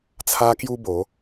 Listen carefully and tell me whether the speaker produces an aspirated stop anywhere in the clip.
yes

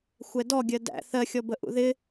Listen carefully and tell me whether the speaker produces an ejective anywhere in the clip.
no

